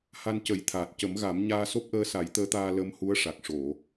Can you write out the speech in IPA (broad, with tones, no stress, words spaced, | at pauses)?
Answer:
ha˧ncə˨˩˦jt̪ʰaː˨˩t̚ cə˨˩˦mɣa˨˩˦m ɲaː˧so˦˥p̚ʔəː˧ sa˨˩˦jt̪əː˧˥t̪aː˧ lə˧˥mhu˧˥ə̯ʂa˨˩k̚ ʂo˨˩˨